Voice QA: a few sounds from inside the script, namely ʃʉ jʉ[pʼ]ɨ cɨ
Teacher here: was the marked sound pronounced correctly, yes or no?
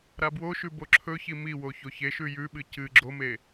no